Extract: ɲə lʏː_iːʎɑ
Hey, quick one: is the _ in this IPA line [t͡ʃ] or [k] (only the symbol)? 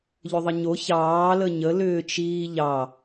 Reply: t͡ʃ